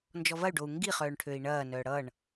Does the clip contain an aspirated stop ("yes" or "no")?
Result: yes